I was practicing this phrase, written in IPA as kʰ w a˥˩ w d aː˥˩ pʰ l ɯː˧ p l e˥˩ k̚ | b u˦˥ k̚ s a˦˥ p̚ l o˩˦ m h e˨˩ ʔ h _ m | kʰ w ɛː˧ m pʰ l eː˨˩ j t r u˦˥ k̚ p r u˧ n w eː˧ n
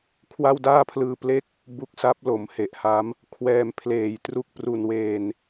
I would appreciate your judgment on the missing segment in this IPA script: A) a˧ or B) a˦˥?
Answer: B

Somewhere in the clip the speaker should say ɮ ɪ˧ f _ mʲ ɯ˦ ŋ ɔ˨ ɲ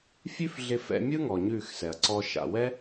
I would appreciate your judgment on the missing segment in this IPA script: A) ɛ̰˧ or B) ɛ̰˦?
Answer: A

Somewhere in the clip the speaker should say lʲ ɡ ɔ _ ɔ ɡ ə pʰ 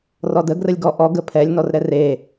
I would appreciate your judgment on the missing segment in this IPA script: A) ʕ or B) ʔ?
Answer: B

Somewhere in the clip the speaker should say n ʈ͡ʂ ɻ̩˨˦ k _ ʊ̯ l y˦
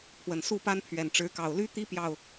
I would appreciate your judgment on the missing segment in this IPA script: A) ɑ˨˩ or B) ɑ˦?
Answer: A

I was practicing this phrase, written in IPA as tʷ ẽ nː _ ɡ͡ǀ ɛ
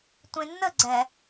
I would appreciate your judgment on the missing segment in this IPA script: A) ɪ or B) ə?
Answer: B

